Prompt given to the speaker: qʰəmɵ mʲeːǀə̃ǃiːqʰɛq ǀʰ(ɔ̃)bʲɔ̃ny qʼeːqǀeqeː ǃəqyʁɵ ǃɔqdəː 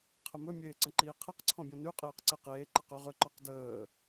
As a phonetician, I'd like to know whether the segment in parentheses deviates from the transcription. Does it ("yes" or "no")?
no